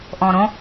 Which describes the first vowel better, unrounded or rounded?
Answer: rounded